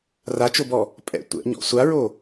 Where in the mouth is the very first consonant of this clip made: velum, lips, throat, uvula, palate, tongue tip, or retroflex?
tongue tip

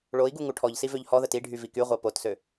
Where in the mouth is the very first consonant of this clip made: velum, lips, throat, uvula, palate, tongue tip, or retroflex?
retroflex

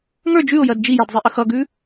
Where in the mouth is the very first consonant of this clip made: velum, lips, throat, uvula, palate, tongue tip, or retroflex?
velum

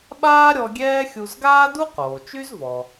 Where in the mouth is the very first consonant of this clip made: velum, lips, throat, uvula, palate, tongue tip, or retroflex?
lips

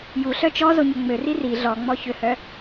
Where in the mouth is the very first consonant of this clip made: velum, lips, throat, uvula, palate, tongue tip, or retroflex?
palate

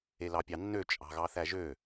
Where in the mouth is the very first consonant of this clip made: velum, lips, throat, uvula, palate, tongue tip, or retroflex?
tongue tip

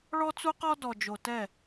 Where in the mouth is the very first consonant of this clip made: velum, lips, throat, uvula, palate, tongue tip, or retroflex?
retroflex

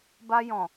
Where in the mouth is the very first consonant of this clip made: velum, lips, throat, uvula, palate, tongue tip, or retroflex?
lips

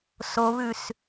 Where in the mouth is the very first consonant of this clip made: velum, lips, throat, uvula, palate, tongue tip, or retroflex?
tongue tip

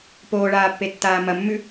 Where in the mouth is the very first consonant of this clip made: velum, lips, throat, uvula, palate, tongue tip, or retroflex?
lips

